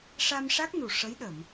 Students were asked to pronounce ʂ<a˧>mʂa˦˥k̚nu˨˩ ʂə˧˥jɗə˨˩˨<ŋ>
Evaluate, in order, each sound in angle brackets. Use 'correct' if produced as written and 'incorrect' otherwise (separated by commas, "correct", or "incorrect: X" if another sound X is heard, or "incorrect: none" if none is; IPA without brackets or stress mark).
correct, incorrect: m